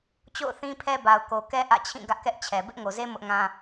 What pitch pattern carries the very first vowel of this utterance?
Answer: falling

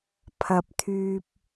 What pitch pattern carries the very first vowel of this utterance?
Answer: low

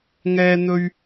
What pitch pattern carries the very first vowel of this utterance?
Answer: high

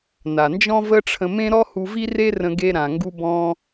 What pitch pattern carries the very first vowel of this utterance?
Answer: low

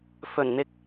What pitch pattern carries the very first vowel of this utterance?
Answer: low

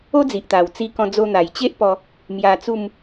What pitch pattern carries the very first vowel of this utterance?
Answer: high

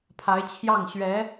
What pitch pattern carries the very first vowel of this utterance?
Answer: rising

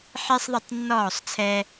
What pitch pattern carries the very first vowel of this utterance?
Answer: high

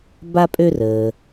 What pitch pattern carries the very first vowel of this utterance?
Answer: high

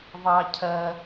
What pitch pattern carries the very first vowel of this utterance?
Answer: low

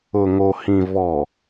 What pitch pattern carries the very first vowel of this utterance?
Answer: low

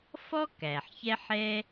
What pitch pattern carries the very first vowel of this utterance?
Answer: high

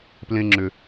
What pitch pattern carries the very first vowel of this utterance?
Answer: low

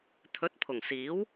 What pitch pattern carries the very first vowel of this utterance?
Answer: rising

